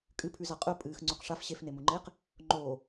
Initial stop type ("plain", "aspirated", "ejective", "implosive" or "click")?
ejective